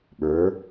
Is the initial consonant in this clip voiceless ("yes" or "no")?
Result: no